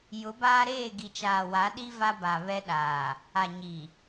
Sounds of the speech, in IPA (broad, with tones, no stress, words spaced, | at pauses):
jʊ˨˦baː˦ɾeː˦˨ ɡi˨t͡ʃaː˨wa˨˦ɗi˦ va˦ba˨βɛ˦ɗaː˨ | a˨ɲi˨